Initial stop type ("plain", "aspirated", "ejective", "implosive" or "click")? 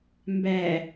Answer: plain